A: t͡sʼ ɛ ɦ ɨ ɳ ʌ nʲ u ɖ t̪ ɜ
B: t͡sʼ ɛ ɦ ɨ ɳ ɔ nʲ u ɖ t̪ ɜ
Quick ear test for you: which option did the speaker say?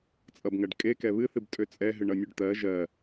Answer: A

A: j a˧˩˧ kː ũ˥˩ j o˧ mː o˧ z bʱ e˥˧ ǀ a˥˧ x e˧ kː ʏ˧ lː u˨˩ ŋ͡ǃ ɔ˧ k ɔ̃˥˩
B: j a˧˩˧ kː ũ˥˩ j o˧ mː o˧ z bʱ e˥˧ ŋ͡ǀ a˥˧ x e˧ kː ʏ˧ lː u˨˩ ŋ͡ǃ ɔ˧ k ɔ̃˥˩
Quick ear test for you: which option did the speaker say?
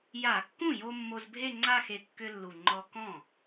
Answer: B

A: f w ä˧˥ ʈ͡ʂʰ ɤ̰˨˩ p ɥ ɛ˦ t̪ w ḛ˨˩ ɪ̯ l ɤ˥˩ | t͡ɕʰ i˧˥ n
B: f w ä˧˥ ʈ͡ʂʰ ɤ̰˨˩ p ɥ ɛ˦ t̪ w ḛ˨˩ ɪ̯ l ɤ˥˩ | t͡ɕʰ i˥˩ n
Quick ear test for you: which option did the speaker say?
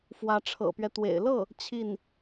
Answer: B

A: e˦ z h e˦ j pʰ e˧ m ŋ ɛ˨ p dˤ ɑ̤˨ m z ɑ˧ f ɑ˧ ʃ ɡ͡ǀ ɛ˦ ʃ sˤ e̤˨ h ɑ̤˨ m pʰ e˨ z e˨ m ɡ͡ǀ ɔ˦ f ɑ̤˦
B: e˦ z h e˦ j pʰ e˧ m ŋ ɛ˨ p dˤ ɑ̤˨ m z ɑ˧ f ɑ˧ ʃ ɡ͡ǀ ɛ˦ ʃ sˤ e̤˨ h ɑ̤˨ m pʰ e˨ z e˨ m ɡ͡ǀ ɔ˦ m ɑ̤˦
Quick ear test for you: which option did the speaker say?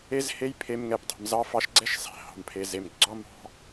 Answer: B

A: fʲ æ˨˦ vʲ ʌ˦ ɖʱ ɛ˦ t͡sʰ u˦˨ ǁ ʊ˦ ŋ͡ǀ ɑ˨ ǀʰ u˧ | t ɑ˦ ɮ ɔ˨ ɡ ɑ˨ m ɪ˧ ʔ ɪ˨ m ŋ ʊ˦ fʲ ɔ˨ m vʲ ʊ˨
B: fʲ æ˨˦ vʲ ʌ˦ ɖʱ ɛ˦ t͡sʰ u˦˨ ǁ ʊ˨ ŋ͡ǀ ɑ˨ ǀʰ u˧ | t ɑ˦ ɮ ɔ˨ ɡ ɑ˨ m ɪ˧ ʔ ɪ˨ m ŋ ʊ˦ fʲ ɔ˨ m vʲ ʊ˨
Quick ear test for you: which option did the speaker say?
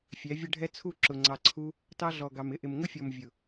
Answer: B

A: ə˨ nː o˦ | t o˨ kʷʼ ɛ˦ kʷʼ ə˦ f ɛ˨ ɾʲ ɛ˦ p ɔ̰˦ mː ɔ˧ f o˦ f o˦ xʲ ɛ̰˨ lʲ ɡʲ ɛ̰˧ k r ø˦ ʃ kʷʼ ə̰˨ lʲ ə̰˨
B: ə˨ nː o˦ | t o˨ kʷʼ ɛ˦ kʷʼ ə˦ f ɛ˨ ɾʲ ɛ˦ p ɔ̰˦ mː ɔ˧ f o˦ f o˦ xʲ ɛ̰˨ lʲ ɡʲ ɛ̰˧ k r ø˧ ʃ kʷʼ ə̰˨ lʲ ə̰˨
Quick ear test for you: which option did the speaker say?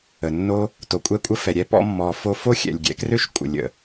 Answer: A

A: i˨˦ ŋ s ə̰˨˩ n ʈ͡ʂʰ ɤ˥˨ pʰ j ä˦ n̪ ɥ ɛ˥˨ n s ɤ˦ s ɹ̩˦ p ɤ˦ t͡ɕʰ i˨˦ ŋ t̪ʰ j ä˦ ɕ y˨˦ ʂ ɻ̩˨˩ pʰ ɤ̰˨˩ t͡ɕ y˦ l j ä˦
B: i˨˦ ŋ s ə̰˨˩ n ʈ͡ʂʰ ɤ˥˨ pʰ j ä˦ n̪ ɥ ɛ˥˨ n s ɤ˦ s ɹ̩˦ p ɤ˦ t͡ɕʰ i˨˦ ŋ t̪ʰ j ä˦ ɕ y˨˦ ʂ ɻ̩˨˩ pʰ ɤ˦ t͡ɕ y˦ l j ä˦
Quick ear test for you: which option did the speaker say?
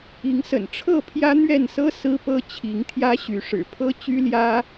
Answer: B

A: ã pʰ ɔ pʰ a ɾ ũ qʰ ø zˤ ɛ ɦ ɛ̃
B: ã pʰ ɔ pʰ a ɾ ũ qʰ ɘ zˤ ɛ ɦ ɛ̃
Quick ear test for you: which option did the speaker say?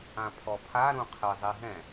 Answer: B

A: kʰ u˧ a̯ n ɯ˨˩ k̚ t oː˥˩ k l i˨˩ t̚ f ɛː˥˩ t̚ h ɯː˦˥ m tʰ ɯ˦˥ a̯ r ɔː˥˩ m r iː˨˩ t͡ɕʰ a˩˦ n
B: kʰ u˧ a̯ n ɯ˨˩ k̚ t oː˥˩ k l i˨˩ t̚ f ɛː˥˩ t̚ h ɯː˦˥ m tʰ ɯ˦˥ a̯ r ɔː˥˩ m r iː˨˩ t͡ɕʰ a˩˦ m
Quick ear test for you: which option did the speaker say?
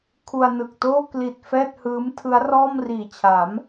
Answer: B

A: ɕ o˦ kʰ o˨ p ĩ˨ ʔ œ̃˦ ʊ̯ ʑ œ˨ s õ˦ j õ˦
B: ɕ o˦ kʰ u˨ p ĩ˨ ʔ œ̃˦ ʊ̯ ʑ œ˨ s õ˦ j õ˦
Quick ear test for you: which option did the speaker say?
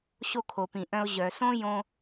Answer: A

